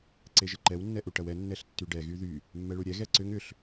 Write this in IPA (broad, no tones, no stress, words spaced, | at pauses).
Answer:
ǀeʒəǃɛw nːɛʔuʈɐwɛ nːɛɬtːyɖɛ ɣyðy | mːɛɭuɾʲɛ ɣɛǀʏŋ ʏɬ